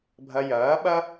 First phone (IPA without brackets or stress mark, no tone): bʱ